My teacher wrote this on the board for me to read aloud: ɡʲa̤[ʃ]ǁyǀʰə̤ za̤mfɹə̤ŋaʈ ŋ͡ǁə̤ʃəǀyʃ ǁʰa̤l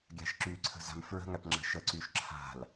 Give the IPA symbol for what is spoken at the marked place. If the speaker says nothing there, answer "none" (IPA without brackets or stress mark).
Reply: ʃ